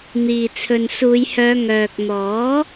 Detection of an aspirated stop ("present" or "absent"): present